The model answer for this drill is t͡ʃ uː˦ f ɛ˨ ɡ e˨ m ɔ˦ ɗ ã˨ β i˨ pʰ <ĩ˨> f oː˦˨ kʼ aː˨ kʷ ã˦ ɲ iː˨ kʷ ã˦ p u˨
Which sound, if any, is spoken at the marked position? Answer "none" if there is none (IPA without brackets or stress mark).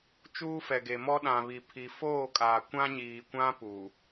i˨